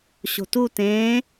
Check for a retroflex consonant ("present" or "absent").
absent